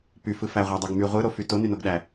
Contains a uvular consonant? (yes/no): yes